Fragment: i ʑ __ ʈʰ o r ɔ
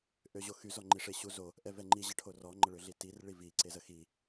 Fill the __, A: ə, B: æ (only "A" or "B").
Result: A